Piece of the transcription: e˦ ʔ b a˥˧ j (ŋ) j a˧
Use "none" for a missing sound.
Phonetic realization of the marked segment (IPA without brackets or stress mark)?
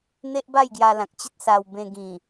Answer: ɡ